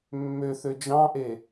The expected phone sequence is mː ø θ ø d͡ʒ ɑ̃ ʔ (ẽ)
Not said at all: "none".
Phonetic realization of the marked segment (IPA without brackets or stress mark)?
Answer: e